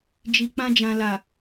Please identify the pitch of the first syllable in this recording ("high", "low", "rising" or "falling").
low